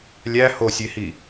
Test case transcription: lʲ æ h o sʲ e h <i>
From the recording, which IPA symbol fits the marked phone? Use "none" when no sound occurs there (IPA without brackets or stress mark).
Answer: i